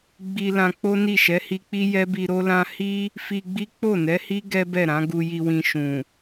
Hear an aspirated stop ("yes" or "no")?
no